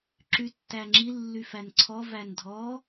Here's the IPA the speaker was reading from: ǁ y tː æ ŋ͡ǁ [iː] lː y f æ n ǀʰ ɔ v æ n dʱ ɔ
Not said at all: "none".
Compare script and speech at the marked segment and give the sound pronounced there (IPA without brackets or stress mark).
i